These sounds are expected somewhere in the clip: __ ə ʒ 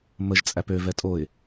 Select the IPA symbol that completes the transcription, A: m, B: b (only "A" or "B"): A